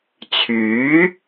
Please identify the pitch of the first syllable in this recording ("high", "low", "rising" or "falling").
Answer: rising